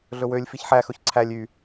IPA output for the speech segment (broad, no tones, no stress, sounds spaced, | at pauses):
ɮ ɵ w ø lʲ f i ç ħ æ x ɵ ç ǀʰ æ lʲ y